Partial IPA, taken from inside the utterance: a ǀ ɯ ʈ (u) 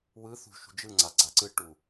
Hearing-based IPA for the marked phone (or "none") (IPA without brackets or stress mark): u